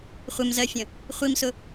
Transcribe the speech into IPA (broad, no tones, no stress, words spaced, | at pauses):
χʷɪmzɜfʲə̃ | χʷimsʊ